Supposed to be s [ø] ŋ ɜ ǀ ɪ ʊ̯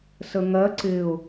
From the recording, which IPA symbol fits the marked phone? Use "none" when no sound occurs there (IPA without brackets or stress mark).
ə